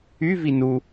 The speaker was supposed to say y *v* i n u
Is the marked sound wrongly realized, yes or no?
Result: no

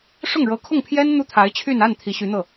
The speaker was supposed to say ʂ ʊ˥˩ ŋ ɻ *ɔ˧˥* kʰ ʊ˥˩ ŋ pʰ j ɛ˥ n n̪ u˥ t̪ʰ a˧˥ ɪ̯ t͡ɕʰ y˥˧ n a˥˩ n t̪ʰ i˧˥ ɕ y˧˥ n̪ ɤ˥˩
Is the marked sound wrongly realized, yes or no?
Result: yes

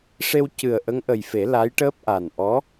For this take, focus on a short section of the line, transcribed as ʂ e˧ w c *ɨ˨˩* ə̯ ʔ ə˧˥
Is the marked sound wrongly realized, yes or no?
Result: no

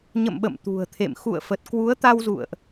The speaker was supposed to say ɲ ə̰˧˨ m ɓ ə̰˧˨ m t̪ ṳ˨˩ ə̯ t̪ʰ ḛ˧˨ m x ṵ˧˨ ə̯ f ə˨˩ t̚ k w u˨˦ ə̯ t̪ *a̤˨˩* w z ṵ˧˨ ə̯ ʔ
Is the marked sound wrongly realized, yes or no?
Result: yes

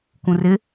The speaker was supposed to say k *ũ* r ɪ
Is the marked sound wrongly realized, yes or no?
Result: no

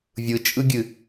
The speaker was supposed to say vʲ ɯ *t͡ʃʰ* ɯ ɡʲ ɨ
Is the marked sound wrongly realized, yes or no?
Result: yes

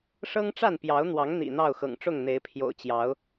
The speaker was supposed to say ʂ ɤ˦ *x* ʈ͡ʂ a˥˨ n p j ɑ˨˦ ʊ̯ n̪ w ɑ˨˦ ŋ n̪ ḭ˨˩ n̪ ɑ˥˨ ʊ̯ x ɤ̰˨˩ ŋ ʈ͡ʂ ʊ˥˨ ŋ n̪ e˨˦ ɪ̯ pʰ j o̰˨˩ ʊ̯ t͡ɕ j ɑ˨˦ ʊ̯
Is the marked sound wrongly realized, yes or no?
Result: yes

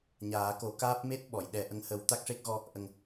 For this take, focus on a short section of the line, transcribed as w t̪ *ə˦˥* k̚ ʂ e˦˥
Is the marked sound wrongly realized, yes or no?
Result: yes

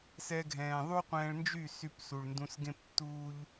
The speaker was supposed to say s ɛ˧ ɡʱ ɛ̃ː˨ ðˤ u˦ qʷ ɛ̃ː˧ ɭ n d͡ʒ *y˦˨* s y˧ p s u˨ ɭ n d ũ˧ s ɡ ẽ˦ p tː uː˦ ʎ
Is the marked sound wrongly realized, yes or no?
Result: no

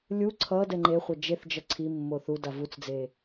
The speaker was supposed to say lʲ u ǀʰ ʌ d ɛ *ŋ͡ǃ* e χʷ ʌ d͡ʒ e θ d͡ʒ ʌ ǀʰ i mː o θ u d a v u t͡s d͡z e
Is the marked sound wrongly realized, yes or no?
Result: no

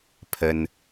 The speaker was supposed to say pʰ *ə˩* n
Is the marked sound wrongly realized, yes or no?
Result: no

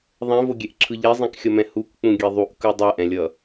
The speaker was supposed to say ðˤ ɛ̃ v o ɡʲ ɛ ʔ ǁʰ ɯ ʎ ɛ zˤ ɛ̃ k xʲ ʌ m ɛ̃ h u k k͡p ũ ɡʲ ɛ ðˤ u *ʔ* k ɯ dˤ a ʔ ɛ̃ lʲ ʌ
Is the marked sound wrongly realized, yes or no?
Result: no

